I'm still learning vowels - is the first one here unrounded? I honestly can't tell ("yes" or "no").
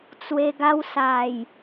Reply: yes